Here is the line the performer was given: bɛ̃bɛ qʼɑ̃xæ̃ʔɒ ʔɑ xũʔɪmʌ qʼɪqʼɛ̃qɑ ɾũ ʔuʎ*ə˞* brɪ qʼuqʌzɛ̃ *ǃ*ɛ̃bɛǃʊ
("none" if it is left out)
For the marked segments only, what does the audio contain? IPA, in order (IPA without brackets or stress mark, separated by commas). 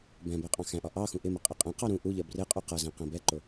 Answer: ɜ, q